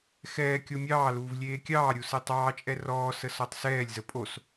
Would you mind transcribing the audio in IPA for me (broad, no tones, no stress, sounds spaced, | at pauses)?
x ɛː kʲ o mʲ ɑː l uː v lʲ eː kʲ ɑː ɾʲ u s e tˤ ɑː t͡ʃʼ ɛ r ɔː s ə s ɔ tˤ s ɛː lʲ z ə pʼ o s